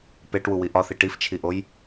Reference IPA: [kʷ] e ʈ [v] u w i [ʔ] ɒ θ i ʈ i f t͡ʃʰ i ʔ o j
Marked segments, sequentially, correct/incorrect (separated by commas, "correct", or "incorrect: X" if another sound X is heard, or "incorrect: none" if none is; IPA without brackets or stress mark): incorrect: p, incorrect: w, correct